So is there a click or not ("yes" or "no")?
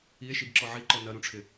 yes